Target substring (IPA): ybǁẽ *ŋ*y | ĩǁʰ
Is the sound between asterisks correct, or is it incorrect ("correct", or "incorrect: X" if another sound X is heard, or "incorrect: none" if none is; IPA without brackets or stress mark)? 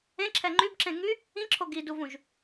correct